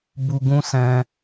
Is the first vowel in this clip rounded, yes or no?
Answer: yes